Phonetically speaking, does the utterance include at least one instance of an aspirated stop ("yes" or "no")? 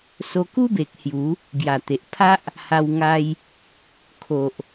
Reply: yes